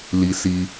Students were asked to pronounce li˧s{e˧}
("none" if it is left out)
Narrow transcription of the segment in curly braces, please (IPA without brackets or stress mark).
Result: i˧